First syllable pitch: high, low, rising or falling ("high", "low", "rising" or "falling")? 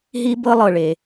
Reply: high